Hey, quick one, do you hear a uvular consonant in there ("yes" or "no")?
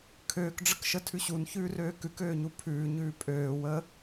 no